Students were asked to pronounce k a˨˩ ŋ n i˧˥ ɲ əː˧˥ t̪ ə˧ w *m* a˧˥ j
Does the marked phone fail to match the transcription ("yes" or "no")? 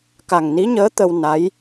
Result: yes